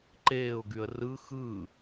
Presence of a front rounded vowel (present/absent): present